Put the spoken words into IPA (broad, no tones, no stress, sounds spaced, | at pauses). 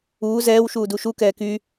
uː z ɛː w ʃ uː d u ʃ u k ɛː k y